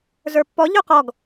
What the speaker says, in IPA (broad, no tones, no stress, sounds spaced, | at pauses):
z ə˞ pː ɔ ʎ ʊ q ɔ ɡ